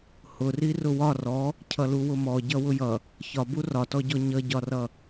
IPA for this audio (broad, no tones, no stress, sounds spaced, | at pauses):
h ʊ r i r ʊ w ɒ r ɔ | cʰ ʌ l u w ʊ m ɔ ɟ ʌ w ʊ j ʌ | ç ɒ b u r ɒ t ɔ ɟ ɔ ɲ ʌ ɟ ɒ r ʌ